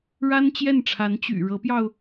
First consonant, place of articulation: retroflex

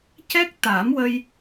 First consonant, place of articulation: palatal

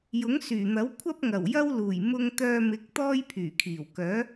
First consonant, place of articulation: palatal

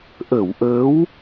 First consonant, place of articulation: glottal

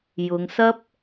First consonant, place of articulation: palatal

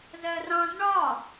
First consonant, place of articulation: alveolar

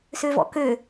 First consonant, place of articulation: alveolar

